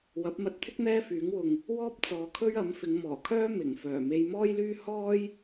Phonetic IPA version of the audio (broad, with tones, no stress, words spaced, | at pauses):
wɐ˨˥p̚mɐ˧t̚t̪ʰɪ˥k̚ n̪ɛː˥fyː˨˥ŋwʊ˧ŋ | wɔː˥p̚t͡sɔː˨˧kʰɵ˥ɥ ɐ˨˥mfɪ˨˧ŋmɔː˨˩kʰœː˥ mɪ˨˩ŋfœː˨˩ me˧jmɔː˥jlyː˥ hɔː˥j